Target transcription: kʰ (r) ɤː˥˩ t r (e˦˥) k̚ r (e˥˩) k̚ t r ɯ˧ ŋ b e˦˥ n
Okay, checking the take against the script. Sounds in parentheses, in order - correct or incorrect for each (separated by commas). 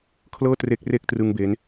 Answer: incorrect, correct, correct